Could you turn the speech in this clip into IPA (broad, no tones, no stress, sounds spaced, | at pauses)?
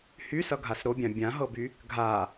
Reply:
h y s ʌ ɡʱ a s ɾ o bʲ ã bʲ ã ɦ ɤ b y | ɡʱ a